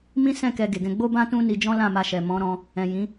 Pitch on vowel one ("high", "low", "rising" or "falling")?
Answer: high